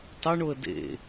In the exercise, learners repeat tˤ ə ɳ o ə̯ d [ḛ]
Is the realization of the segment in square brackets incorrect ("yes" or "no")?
no